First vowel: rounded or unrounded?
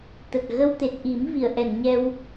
unrounded